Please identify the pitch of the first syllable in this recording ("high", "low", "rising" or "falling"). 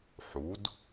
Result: rising